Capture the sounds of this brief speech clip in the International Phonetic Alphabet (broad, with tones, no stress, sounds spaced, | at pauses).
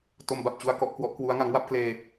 t o˧ m b a˨˩ p̚ t͡ɕ u˧ a̯ k ɔ˥˩ ʔ k w ɔ˦˥ ʔ k w u˦˥ a̯ ŋ a˦˥ ŋ w a˥˩ p̚ k l eː˧